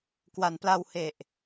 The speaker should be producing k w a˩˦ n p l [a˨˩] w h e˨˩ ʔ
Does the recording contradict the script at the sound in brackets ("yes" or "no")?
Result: yes